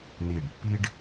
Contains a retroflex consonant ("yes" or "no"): yes